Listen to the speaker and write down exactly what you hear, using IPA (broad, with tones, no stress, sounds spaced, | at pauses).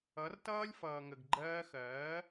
ʌ˨˦ r t ʌː˦ lʲ f ʌː˨ ŋ ə˨ ɡ ɡ͡ǃ ɜː˧ x ɜː˨˦